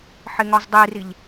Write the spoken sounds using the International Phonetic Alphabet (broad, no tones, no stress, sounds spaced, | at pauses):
ħ ɪ ŋ ɒ z dˤ i r i ʎ